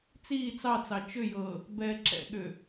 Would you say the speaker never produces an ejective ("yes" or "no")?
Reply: yes